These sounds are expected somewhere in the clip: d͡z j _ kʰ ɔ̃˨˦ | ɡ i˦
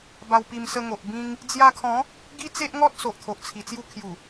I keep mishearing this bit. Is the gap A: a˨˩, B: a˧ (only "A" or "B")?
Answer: B